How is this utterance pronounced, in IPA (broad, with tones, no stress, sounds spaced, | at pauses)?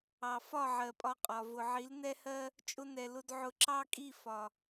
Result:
ɑ˨ f ɒ˦˨ ʕ ɜ˨ pʼ ɒ˧ qʼ ɒ˨ v ʊ˨ ʕ i˨˦ l n ɛ˦ h ɜ˦ | t͡ʃʼ ʊ˧ n ɛ˨ l ʊ˧ d ʕ ʊ˧ ǁ ɑ˦ kʼ i˦˨ f ɒ˨